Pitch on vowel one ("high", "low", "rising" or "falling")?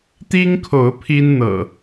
high